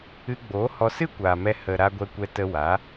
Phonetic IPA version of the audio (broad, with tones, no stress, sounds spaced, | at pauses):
ɨ˧ ɡ͡b oː˨˦ h ɔ˧ s ɨ˦ kʷ aː˨ m ɛ˧ h ə˨ ɾ aː˧ ɡʷ ɛ˧ kʷ ɛ˧ t ə˧ w a˨˦